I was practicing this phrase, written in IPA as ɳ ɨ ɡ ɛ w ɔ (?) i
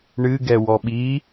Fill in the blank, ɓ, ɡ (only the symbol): ɓ